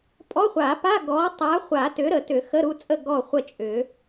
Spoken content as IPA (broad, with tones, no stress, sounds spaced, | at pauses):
pʼ ɔ˧˥˧ χʷ a˨˩˦ p a˧˥˧ ɡ ɔ˨˥ tˤ a˨˥ χʷ a˨˩˦ t ʏ˨˥ ɾ ə˨˩˦ t ʏ˨˩˦ x ə˧˥˧ ɾ u˥˨ t͡sʼ ə˥˨ ɡ ɔ˥˨ χʷ ə˥˨ t͡ʃʼ ʏ˨˩˦